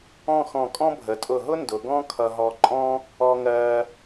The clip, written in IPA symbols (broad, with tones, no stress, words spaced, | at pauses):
ɔ̃˥˧xɔ̃˧˩kʼɔ̃˥ bʱə˩˧tʼʊ˧˩ɦʊ˥ ndʊ˩˧ ɡɔ̃˥kʰʌ˧ɦɔ˧ ǃʼɔ̃˥ | ɔ˧ŋɜ˧